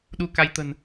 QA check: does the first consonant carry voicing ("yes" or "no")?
yes